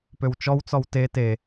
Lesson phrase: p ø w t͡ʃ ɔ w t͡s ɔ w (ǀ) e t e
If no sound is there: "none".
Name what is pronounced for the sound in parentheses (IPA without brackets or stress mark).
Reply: t